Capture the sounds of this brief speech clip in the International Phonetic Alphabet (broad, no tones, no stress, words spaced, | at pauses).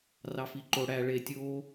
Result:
rɑfiǃo ɽæ ɭe tʲoː